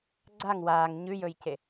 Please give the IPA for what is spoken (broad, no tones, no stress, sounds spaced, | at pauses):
ɡ͡ǀ a ŋ w aː ŋ ɲ ʉ j ɵ j c e